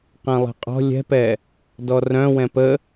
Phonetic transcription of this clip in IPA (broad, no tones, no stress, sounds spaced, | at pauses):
q ɛ̃ lˠ ɛ̤ qʼ ɔ̤ lʲ ɛ̤ p ɛ | d ɔ r œ̃ w ɛ̃ p ə